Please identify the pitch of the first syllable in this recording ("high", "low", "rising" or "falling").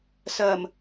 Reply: low